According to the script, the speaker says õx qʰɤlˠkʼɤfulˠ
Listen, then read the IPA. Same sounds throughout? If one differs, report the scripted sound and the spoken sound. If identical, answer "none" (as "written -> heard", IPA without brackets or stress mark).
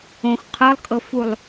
none